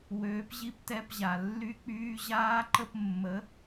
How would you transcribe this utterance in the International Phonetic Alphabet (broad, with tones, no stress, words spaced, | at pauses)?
wøː˨˥pʑi˦˥p tɛ˧˥˧pʑa˨˩ lːy˦˥k͡pyː˧˥˧ ʑaː˦˥ǃə˥˧p mːə˨˥